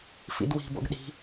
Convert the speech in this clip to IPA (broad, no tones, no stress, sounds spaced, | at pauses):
f ḭ d w i̤ b o̰ ɡ ɗ i̤